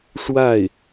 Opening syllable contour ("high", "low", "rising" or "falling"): falling